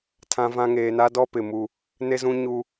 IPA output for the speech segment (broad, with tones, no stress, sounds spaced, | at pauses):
tʰ ã˦ v ã˦ ŋ eː˨ n a˦ d ɔ˦ p ɪ˨ m u˦ | n e˦ z ũ˦ ɲ u˦